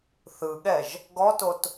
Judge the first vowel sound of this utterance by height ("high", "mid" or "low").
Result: high